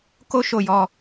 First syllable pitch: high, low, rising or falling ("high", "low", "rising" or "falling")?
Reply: high